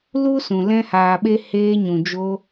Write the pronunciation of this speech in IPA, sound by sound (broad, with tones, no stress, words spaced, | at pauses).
lu˦sũ˨ lɛ̃˧haː˨ɓe˧ heː˧ɲũ˨d͡ʒo˧